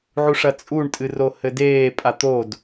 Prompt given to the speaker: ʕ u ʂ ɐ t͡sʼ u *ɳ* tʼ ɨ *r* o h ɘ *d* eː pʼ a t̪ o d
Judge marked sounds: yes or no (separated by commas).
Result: yes, yes, yes